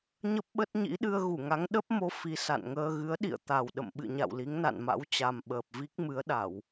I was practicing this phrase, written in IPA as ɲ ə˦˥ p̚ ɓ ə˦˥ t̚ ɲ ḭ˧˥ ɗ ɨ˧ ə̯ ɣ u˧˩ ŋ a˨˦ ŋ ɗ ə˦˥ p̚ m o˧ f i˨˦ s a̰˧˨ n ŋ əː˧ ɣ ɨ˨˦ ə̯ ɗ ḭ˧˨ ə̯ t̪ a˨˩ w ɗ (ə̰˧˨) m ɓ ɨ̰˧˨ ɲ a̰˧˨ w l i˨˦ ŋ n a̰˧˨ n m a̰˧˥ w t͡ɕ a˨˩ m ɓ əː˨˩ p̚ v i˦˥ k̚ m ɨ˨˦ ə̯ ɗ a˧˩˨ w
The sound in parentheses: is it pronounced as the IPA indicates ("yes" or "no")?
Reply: yes